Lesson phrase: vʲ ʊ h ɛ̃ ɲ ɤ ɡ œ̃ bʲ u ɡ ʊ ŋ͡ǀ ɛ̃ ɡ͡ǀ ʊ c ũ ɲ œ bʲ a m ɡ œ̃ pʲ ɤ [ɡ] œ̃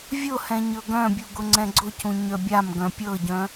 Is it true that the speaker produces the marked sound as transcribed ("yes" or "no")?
no